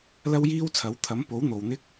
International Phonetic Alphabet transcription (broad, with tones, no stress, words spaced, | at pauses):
lɐ˥wjiː˥wt͡sʰɐ˨˥w t̪ʰɐ˨˥mpo˨˥w n̪o˨wn̪ɪ˥k̚